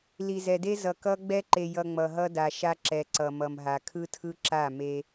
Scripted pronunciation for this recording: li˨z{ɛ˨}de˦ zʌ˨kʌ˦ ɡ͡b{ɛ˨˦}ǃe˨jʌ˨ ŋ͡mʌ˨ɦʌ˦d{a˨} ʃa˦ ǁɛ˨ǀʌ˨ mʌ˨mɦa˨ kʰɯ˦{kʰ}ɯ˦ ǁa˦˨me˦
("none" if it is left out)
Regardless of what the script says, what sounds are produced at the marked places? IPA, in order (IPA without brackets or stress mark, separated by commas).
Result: ɛ˨, ɛ˦, a˨, tʰ